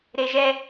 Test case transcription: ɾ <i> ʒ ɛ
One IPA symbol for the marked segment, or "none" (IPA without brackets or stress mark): e